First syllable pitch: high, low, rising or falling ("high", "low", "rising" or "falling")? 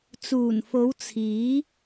low